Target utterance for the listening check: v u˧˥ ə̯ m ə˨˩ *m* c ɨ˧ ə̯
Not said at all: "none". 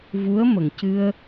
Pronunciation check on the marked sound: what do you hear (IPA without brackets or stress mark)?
ŋ